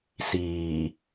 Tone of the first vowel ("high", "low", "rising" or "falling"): low